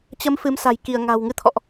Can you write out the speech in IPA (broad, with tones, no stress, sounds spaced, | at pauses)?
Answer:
t͡ɕ ə˨˦ m f ɨ˨˦ m s a̤˨˩ j k i˧˩ ə̯ ŋ a̤˨˩ w ŋ ɨ˧ t̪ʰ ɔ̰˧˨ ʔ